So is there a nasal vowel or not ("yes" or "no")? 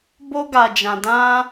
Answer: yes